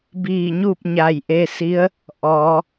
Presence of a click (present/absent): absent